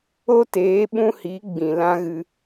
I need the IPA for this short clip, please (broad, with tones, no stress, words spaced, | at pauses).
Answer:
o˦teː˨˦ ɓũ˦hi˨˦ ɡ͡bĩ˨lã˦ɣɨ˧